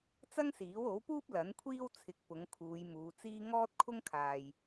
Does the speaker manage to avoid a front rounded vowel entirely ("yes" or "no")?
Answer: yes